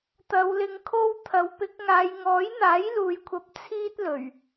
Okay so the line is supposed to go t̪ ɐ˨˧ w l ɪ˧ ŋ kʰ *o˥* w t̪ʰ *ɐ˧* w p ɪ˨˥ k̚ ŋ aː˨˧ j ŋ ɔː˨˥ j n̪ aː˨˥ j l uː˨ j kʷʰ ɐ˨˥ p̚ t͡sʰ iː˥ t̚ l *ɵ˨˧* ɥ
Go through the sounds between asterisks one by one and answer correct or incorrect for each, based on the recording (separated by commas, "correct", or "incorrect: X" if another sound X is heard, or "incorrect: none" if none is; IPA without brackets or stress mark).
correct, incorrect: ɐ˨˥, incorrect: ɵ˨˩